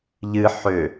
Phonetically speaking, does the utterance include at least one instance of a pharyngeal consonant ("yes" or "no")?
yes